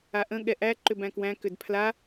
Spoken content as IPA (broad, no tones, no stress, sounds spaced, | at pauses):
a ʔ ə̃ ɠ ɛ ʔ æ ǃ ʏ b æ̃ k w æ̃ k ʏ d pʰ l a